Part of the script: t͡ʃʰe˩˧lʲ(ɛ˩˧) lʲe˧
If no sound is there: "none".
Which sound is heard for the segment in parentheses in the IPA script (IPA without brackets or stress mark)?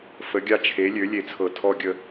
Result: ø˩˧